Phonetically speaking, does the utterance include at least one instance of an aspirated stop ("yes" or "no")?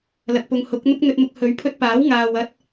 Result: yes